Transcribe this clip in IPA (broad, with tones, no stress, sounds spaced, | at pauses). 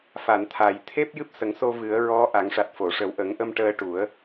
f a˨˩˨ n t̪ʰ a˨˩ j t̪ʰ e˦˥ p̚ j ɨ˦˥ p̚ s ə˨˩˦ ŋ s o˧ v ɨ˨˩˦ ə̯ ɹ ɔ˧˥ ʔ a˨˩˦ ŋ ʂ a˨˩ t̚ f o˨˩˨ ʂ ə˨˩˦ w ʔ ə˨˩˦ ŋ ʔ ə˧ m ʈ əː˧ ʈ u˨˩˦ ə̯